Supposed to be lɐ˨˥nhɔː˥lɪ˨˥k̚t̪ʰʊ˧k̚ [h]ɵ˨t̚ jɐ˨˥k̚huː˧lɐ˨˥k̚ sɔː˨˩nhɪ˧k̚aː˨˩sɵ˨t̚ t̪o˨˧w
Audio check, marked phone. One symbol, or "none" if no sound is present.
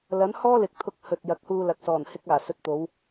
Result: h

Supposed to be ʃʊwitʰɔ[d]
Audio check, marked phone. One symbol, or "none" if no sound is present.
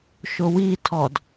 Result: d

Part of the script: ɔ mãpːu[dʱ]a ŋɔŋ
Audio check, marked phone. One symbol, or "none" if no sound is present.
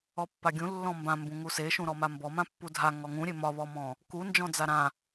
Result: dʱ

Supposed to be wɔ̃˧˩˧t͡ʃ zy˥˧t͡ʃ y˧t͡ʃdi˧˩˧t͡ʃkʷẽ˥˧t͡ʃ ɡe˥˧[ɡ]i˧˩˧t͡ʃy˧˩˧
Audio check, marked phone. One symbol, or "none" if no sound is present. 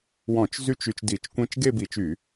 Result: b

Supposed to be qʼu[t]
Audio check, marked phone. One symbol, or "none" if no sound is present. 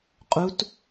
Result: t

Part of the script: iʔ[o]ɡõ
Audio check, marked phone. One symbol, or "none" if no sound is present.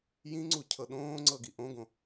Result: õ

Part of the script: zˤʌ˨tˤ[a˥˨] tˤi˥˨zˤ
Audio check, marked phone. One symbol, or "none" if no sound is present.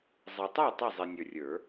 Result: a˥˨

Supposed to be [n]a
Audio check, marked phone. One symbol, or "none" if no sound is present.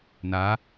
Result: n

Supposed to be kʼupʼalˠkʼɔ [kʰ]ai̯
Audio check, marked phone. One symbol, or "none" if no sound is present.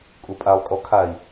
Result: kʰ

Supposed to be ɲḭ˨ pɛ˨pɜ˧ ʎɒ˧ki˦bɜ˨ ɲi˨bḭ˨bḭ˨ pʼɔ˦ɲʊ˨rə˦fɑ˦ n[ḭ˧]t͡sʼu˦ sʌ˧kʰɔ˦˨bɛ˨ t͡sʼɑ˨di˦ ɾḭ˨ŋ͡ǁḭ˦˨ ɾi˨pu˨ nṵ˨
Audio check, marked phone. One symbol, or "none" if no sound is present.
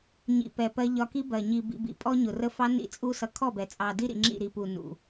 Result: ḭ˦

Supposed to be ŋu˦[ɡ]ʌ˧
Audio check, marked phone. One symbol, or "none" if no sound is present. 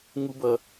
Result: b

